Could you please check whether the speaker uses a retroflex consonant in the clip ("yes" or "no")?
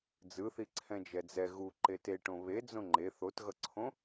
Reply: yes